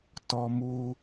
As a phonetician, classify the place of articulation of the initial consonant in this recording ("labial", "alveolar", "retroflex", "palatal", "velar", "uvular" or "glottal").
alveolar